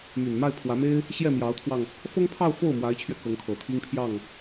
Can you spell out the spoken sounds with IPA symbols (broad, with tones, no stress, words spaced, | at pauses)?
my˨˩nma˥˩ɪ̯pʰwä˧˥me˥ɪ̯ | ɕjɛ˥˩mjɑ˧˥ʊ̯t̪ʰwɑ˧ŋ | fɤ˥ŋpʰɑ˥˧ʊ̯ fo˥˩ʊ̯mwa˧˥ɪ̯t͡ɕʰɥɛ˧ kɤ˧˥ŋkʰɤ˨˩t̪ʰi˥ŋpʰjɑ˥˩ŋ